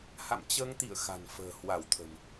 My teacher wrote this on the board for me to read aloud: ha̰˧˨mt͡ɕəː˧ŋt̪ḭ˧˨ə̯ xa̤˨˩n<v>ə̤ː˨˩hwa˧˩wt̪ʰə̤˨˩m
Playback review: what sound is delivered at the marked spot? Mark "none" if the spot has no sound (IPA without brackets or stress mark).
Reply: f